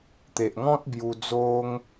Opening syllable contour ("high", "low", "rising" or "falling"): low